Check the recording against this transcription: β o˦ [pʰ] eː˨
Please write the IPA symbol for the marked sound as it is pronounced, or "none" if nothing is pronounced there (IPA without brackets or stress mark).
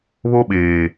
ɓ